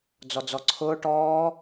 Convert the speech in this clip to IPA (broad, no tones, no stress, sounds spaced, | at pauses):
d͡z ɔ d͡z ɔ ǀʰ ʊː ʈ ɔː